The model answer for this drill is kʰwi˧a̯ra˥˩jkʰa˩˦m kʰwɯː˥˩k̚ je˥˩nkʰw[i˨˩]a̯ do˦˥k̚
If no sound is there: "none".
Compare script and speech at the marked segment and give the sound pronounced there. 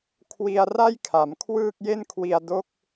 i˧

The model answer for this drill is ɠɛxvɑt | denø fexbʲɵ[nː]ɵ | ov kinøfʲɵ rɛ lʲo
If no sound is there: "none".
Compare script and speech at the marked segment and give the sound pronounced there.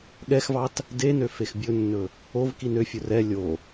nː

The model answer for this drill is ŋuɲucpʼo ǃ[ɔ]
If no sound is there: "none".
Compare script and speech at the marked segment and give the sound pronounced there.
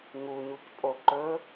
ɵ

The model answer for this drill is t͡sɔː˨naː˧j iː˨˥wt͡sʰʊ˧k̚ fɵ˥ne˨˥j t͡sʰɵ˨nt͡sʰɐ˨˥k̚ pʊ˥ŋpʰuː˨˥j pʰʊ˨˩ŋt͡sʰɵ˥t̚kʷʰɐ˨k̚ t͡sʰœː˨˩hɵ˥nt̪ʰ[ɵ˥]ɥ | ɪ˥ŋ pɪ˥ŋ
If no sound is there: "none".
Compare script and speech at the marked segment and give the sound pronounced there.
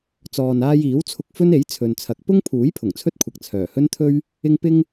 ɵ˥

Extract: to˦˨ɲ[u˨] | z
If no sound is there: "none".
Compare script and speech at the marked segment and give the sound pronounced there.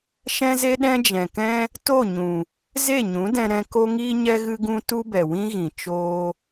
ũ˨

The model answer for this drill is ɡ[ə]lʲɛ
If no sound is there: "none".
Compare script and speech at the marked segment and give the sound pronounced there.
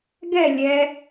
ɛ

